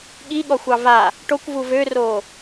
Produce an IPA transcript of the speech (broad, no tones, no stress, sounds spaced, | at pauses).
ɠ i ɠ ɔ xʷ ɑ v a | ʈ o kʷ v u v ø r oː